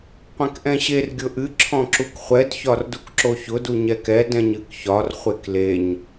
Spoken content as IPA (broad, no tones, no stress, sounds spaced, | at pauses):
qʷ ɛ̃ k ʔ ɛ̃ ɕ e r ɡʲ ʊ ʔ ɨ ǁʰ ɔ̃ ǁ u k χʷ ɛ d ç ɒ r d u k ǁ o ç ʊ d u ɲ ɛ k ɛ d ɛ̃ ɲ ɨ k ç ɒ r χʷ e k l e ɲ